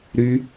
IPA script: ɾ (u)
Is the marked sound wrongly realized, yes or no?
yes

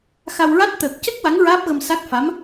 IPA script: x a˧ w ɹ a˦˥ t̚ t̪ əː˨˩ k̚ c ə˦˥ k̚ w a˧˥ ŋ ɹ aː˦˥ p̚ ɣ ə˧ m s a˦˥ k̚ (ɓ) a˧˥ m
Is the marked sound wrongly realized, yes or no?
yes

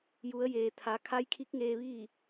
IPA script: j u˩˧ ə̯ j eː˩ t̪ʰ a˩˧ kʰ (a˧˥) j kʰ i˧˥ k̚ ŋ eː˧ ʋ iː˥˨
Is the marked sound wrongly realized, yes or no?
no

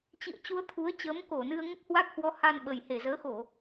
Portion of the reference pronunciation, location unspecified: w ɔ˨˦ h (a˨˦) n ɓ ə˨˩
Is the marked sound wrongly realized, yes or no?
yes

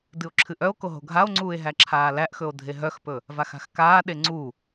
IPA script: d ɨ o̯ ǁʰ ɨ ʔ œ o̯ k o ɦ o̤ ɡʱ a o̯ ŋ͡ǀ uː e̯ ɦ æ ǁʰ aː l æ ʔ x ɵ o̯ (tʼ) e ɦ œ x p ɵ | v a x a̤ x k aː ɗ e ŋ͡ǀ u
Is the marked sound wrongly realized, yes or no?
yes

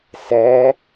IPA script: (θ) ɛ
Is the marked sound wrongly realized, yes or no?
yes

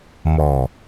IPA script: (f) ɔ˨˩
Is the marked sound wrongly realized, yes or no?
yes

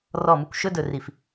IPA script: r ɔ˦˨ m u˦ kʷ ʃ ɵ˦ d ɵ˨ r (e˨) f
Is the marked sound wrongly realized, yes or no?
yes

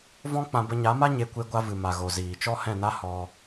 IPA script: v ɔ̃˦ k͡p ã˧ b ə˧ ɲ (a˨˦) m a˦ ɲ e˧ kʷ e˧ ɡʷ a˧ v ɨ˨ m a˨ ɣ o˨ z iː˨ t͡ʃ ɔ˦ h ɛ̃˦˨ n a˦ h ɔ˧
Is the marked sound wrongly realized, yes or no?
no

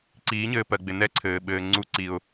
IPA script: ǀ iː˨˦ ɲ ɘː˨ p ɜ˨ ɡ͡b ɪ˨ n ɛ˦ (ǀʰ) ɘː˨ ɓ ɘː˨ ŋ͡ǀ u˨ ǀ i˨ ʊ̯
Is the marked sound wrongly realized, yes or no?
no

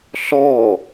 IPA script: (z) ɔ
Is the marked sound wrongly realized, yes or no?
yes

